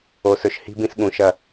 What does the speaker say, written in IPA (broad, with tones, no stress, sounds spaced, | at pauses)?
o˨ s ɵ˨ ʃ h i̤˦ b ĩ˦ s ɠ ũ˨˦ ʃ ɐ˦